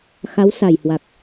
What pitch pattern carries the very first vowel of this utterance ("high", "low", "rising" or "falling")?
rising